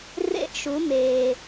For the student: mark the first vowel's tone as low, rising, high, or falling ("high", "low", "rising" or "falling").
rising